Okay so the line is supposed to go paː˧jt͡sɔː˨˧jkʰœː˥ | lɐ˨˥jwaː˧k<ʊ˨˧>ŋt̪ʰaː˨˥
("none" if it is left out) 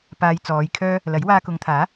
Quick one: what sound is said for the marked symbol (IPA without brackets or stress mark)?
ʊ˨˧